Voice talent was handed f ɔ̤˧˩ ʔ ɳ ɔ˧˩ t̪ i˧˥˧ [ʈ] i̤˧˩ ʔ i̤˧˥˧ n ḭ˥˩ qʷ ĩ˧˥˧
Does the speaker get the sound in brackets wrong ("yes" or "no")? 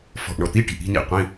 no